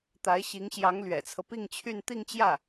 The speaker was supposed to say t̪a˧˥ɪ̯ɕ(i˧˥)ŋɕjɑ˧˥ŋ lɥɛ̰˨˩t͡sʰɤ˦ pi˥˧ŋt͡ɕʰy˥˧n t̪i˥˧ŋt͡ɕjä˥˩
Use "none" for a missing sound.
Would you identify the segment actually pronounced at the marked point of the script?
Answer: i˧˥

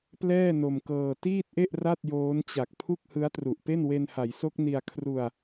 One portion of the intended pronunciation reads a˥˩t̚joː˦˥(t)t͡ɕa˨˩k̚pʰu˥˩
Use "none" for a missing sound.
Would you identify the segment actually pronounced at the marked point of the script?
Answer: n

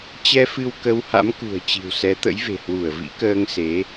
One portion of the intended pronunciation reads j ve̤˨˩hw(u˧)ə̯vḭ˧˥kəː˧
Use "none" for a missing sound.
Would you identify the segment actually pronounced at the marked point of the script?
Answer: u˧˩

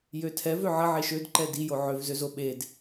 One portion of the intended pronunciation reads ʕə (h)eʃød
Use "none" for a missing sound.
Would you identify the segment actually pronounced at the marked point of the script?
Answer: ʕ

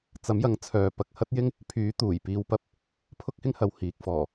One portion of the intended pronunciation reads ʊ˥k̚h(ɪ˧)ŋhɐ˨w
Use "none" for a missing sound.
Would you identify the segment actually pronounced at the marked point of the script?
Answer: ɪ˥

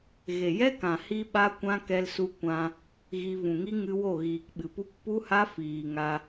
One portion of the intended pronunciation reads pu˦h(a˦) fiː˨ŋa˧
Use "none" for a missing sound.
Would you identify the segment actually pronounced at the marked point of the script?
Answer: a˦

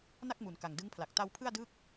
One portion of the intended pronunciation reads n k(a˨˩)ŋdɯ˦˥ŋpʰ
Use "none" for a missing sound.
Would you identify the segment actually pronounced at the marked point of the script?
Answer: a˨˩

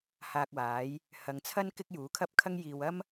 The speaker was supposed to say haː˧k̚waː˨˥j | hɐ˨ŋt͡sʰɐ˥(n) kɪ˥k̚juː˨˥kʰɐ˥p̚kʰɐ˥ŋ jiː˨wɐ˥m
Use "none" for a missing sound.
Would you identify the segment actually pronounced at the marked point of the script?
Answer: n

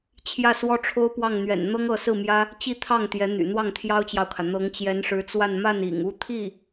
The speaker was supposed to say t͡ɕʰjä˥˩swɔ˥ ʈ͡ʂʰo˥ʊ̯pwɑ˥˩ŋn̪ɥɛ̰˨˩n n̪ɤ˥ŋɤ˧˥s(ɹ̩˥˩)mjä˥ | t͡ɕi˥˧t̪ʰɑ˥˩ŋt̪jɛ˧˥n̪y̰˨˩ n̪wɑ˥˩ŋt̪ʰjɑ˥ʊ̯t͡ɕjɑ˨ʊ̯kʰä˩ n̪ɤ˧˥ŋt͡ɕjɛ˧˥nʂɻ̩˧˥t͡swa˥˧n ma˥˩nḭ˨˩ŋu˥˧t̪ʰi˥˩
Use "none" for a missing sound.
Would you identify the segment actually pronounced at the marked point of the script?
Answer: ɹ̩˥˩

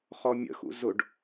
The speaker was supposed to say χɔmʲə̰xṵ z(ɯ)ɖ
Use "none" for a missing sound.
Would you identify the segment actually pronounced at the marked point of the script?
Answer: ʊ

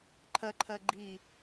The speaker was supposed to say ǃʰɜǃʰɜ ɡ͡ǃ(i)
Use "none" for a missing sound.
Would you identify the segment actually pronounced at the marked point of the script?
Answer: i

